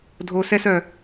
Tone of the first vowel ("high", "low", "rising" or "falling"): low